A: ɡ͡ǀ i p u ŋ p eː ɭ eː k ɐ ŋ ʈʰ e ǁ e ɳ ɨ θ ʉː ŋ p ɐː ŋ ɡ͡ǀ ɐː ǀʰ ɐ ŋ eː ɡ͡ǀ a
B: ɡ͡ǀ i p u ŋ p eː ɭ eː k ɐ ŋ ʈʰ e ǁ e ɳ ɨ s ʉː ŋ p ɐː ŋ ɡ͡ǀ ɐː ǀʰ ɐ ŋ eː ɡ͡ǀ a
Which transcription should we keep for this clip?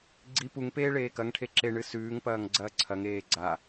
B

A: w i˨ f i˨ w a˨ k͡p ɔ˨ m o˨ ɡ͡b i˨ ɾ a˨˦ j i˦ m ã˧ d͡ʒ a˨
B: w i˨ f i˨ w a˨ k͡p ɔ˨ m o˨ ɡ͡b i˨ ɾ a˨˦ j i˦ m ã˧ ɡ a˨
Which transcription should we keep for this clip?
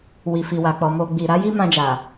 A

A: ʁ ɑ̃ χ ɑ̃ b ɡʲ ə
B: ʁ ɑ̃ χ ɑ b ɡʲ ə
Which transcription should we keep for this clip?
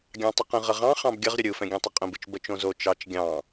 A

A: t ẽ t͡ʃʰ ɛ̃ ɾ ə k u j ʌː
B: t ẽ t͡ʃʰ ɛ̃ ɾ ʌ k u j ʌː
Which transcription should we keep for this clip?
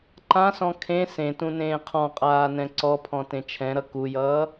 B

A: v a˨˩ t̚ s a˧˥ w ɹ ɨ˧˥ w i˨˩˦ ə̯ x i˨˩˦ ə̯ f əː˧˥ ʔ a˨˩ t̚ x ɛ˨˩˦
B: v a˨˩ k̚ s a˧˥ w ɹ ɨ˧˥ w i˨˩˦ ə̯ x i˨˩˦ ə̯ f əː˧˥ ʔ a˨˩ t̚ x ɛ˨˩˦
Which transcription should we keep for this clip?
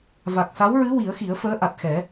B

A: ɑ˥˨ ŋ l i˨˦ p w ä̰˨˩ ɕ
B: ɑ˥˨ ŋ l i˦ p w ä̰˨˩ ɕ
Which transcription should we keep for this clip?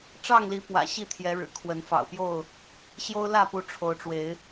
A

